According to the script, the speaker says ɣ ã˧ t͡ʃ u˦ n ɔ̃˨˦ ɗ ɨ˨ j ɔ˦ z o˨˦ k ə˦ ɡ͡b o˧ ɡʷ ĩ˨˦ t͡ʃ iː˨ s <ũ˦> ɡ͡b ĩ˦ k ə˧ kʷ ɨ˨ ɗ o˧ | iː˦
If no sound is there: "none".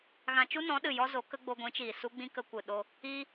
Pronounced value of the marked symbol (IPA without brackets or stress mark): u˦